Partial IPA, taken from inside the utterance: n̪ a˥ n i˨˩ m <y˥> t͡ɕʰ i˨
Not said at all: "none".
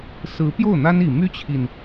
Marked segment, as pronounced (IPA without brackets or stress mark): y˥